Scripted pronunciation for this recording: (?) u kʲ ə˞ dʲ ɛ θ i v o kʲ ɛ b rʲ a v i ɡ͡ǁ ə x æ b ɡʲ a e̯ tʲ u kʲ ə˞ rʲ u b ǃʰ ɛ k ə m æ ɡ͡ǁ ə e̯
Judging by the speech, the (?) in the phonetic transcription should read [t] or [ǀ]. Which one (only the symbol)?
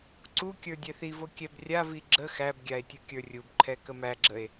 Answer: ǀ